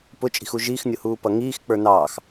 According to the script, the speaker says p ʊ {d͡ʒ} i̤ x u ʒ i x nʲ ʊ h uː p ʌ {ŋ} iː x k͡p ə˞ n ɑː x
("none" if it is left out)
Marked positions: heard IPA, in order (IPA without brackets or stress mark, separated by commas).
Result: t͡ʃʼ, ŋ